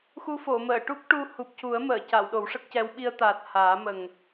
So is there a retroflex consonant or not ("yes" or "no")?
yes